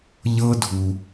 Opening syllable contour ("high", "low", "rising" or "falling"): high